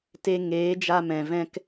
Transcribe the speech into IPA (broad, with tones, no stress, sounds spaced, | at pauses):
t e˧ ŋ eː˨˦ d͡ʒ a˧ m ɛ̃˨ v ɛ̃˦ k